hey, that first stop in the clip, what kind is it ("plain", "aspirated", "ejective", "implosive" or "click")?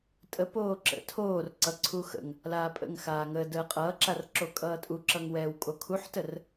ejective